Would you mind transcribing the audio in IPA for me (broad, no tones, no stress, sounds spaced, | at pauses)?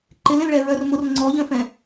ǃ ɪ l ẽ l ɭ ɛ ɹ œ r m ʊ r ŋ͡ǀ ɔ ʎ œ̃ f ɛ̃